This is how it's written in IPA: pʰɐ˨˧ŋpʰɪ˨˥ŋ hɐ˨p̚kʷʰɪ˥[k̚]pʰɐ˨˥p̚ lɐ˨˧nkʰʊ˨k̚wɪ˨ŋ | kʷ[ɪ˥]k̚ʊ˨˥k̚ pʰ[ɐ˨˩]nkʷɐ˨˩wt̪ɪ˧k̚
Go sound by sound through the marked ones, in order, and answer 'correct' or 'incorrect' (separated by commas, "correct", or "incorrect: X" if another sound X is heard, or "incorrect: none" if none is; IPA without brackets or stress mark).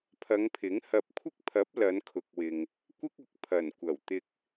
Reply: correct, correct, correct